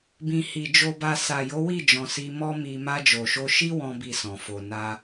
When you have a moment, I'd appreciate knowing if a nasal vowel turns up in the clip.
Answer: yes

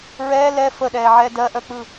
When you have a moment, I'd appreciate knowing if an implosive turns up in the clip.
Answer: yes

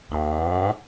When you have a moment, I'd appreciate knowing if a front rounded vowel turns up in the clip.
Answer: no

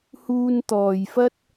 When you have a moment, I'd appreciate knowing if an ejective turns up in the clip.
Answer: no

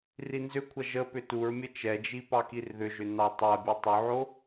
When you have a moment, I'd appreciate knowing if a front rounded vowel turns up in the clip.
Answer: yes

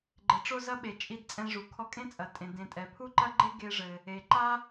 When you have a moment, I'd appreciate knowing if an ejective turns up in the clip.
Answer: yes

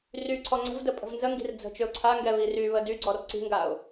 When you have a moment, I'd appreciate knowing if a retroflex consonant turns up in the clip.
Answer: no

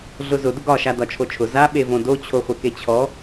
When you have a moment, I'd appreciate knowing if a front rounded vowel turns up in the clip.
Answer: no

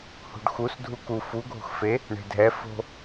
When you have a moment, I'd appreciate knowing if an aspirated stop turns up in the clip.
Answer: no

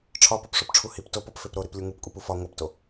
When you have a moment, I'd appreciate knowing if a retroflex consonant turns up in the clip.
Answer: yes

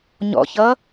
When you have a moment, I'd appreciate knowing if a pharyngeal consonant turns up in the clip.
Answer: no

